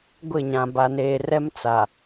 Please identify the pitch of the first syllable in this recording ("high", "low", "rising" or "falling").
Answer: falling